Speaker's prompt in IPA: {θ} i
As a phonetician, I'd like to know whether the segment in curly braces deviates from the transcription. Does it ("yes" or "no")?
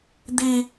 yes